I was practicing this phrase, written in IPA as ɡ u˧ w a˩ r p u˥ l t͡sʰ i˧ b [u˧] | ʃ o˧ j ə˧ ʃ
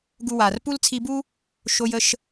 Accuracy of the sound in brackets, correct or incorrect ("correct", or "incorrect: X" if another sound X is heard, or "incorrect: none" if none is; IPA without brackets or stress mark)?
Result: incorrect: u˥